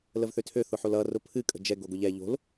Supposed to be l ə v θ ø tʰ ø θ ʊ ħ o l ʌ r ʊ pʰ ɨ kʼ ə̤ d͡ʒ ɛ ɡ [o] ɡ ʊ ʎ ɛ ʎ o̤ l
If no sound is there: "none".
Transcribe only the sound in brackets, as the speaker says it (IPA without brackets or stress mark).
o